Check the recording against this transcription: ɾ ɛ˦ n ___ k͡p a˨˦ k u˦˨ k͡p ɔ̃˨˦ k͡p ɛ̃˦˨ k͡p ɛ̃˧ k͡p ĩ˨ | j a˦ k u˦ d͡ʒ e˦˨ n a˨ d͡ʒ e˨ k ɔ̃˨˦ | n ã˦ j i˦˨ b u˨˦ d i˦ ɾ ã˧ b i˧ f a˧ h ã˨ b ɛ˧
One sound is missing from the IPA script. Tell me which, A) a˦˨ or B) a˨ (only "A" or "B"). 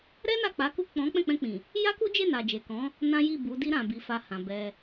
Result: A